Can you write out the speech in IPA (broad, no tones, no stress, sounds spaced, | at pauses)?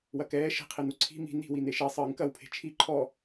w ɐ k ɛː ʃ e̤ qʰ i n u ǀʰ i̤ m i̤ n i̤ w i n e ʃ e sˤ ɨː ŋ k ɐ w pʰ e̤ t͡ʃʰ i ǃʰ ɔ